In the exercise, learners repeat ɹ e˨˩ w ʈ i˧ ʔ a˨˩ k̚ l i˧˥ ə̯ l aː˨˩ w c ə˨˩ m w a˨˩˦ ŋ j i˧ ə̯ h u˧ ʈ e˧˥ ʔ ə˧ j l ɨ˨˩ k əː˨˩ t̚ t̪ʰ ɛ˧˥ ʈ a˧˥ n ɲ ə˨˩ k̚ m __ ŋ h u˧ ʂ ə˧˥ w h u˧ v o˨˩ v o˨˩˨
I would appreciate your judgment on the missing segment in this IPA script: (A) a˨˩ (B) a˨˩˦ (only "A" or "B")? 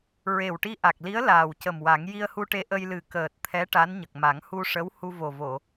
B